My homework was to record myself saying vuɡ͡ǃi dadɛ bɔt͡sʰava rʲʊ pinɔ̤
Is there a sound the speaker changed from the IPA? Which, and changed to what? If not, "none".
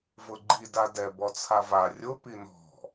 u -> ʊ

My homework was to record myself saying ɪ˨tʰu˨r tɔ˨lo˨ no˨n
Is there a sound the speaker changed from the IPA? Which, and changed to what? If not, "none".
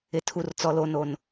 t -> t͡s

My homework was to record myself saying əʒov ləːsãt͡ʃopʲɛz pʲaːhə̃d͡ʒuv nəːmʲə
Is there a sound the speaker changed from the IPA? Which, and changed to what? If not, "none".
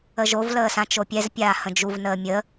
none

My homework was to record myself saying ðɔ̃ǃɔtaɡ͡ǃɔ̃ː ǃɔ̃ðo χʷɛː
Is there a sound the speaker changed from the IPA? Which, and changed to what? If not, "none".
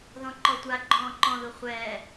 t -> tʷ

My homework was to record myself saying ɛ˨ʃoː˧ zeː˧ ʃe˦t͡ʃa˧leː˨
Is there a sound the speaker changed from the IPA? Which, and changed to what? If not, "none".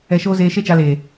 none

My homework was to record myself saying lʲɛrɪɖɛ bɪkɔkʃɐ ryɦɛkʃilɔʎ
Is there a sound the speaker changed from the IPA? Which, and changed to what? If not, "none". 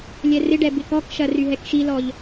none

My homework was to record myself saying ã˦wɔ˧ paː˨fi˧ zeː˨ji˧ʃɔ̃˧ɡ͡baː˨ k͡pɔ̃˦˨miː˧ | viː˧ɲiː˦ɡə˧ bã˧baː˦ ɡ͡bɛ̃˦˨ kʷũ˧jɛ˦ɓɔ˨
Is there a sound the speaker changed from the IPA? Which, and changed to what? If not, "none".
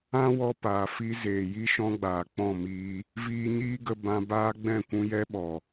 none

